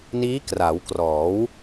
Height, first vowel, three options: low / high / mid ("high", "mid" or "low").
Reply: high